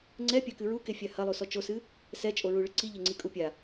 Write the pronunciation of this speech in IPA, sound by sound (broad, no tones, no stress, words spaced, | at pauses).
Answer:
ŋ͡ǀɛpʲakɨ ɹukefʲa hɐlˠusɔ t͡ʃosɨ | sɛt͡ʃʼoɹuɭɘ ǀiʎɘŋ͡ǀikʼu pʲa